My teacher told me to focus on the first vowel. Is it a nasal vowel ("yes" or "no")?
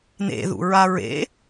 no